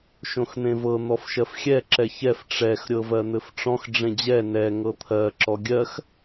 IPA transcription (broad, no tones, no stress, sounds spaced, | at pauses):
ʃ õ x n̪ ẽ v ɤ n̪ ɔ f ʃ ɜ f xʲ ɛ ǁ ɛ ç ɛ f ʈ͡ʂ ɛ x ɾʲ ɤ v ɜ n̪ ɘ f ʈ͡ʂ ɔ̃ x ɖ͡ʐ ẽ d͡ʑ ɛ n ɛ ŋ ɤ t̪ʰ ɜ ǁ ɔ ɡʲ ɜ x